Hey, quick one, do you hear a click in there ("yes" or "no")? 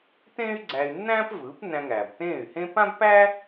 yes